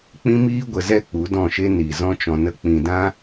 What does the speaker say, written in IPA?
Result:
k͡pĩ˦miː˦ ɡʷə˨zɛ˧ k͡pu˨˦dɔ̃˦˨ʃe˦ ni˨zɔ̃˦t͡ʃɔ̃˧nə˦ k͡pĩ˨dã˦

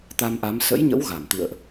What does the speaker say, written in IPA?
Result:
t̪a˧mʔa˨˦m sə̰˧˥jɲə̰˧˥w ɣa˧˩m t̪ɨ̰˧˨ə̯ʔ

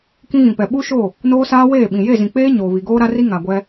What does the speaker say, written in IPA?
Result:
kĩ˦ɣĩ˨pɛ˨ ɓu˦ʃo˦˨ | noː˦saː˦ weː˦˨ɓĩ˨ je˦˨zĩ˨k͡peː˦ ɲoː˨βi˨ ɡoː˦ɾa˦ri˦ŋa˨ ɡʷɛ˦

